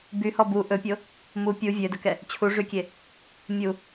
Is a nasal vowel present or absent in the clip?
absent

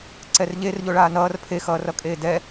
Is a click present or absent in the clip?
present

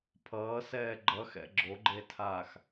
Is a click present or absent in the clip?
present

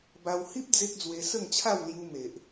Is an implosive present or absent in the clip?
absent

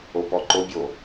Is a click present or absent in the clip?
present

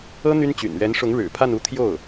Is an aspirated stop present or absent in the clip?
present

